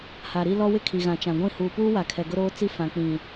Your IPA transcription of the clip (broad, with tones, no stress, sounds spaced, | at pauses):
h a˨ ɾ i˦ l ɔ˦ w ɪ˦ kʰ i˨ ɣ ã˨ t͡ʃ ã˨ ɡʷ ĩ˦˨ h uː˨ p uː˦ w a˨ kʰ ɛ˨ ɡ ʊ˦ ɾ oː˦ t͡s i˦ f ã˨ k͡p ĩ˨